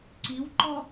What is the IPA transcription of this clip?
ǀ i w ǃ ɔ

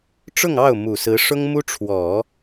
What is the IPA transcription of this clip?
ʈ͡ʂ ʊ˥˧ ŋ ɑ˥˩ ʊ̯ m u˨˩ s ɹ̩˧˥ ʂ ʊ˥ ŋ m u˥ ʈ͡ʂʰ w ɔ˨˩˦

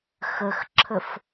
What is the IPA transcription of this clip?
x ə x ǁʰ ə f

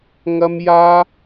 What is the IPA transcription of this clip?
ŋ ɐ˥ m j aː˥

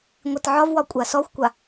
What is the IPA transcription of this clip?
ŋʷ i t ʕ ɒ v w ɒ kʷʼ a s ɔ xʷ kʷ a

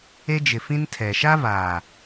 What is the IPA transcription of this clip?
e˦ d͡ʒ ɪ˨ f ĩ˦ n tʰ ɛ˨ ʃ a˦ v aː˨

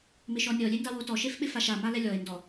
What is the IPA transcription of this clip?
m ɪ ʃ ɔ nʲ ɔ lʲ e n d a w o t ɔ ʃ e f ɓ ɪ f a ʃ a m a l ɛ lʲ ɔ e̯ n d ɔ

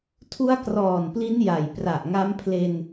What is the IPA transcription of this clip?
tʰ u˦˥ a̯ k r ɔː˨˩ n p l i˦˥ n j a˨˩ j p r a˨˩ ʔ ŋ a˦˥ m pʰ l e˧ n

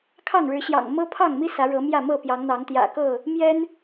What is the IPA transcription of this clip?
kʰ ɑ˥˨ ŋ ɻ ɻ̩˨˦ ɕ j ɑ̰˨˩ ŋ m ɤ˦ pʰ ɑ˥˨ ŋ m i˦ s ä˨˦ ɻ ɤ˨˦ m j ä˥˨ m ɤ˥˨ p j ɑ˨˦ ŋ n̪ ɑ˨˦ ŋ t̪ j ä̰˨˩ k ɤ˥˨ | m j ɛ˦ n

